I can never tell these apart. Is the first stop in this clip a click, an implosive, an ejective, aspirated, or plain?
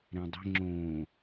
plain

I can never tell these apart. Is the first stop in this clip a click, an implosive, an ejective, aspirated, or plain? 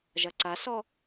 click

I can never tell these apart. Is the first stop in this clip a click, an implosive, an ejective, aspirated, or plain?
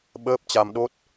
implosive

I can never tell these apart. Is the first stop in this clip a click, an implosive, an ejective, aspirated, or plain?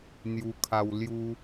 aspirated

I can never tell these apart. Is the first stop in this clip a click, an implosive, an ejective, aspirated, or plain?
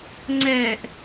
click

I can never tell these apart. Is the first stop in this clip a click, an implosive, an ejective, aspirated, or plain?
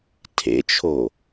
aspirated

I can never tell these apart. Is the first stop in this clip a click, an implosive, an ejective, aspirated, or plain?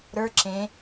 click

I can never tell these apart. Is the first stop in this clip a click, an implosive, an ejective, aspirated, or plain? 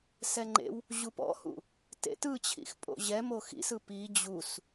click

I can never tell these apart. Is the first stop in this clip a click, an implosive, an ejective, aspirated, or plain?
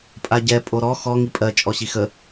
ejective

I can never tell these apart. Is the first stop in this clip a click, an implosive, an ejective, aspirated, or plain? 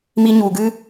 plain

